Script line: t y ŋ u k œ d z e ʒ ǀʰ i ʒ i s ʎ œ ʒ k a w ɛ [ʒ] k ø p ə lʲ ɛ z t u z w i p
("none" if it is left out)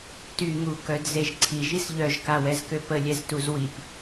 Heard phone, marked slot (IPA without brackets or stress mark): z